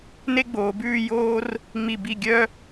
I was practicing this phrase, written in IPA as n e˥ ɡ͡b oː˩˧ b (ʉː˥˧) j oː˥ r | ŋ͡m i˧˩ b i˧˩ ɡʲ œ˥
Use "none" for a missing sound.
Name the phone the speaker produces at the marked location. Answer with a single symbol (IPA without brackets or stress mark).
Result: ʉː˥˧